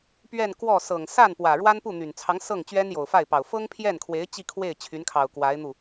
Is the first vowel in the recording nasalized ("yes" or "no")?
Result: no